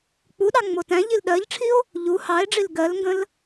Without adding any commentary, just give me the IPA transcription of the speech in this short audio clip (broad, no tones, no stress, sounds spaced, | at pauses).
k͡p u ɗ ɑ ŋ͡m o t æ̃ ʎ i l ɗ ɜ ʎ ʈ͡ʂʰ i o̯ | ʎ u h ɑ e̯ ɖ͡ʐ i l ɡ ɜ l ŋ ɡ ə̃ l